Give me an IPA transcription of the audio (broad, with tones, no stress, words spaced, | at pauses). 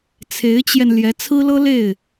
t͡sʰe˧˥ɪ̯t͡ɕjɛ˧n ljɛ˧˥t͡sʰɹ̩˥lɤ˥ le˥˩ɪ̯